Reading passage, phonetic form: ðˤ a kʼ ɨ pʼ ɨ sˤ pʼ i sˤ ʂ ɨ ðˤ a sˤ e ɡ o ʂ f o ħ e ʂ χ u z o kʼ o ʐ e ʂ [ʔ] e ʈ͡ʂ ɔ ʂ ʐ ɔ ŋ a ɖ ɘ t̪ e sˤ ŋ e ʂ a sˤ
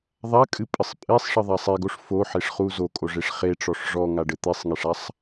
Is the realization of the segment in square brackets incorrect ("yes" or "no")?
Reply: yes